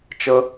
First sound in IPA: t͡ʃ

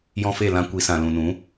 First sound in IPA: j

